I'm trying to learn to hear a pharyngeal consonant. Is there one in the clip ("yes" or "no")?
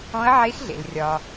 yes